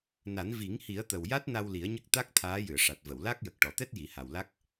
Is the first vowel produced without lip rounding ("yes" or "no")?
yes